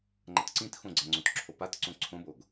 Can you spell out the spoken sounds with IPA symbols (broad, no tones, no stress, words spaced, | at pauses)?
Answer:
ŋ͡ǃʌtǀĩtxõɡ͡ǀa ŋ͡ǀõtǁʰopat ǀõǀʰõboɡ